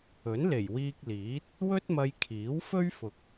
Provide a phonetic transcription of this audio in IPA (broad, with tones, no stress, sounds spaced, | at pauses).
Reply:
ɵ˨˥ n l e˨˩ j w iː˧ k̚ l iː˨˥ t̚ | w ɵ˥ t̚ m ɐ˧ j kʰ iː˨˥ w f ɵ˥ ɥ f ʊ˨ k̚